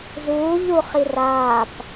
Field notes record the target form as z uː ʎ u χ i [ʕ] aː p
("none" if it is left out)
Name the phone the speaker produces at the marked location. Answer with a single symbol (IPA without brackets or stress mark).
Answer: r